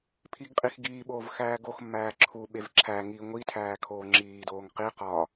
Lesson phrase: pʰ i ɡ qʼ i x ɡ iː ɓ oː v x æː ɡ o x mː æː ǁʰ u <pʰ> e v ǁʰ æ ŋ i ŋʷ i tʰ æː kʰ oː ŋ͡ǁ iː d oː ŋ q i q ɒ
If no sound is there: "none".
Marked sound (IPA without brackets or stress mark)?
ɓ